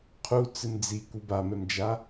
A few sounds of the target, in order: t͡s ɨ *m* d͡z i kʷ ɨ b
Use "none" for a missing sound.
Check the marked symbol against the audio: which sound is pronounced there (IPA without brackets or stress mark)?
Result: m